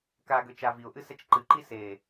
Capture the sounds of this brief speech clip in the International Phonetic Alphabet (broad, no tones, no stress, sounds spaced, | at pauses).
k a ɡ ø t͡ʃ aː v i ʊ̯ ʔ ɨ s ɛ t͡ʃ ǃ ɨ ǃ i s eː